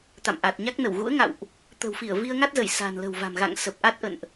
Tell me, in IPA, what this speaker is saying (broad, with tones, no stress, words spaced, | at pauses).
t̪a̰˧˨mʔa˨˩t̚ɲa˦˥k̚ nə˧˩wɣṵ˧˥ə̯ŋa̰˧˨wʔ | t̪ə̤˨˩wfi˧˩ə̯ vi˧ə̯ŋa˦˥t̚zə˧˩j sa̤˨˩nlə̤˨˩wva̤˨˩m ɣa̰˧˨ŋ sə˨˩p̚ʔa˦˥t̚ ʔə̰˧˨nʔ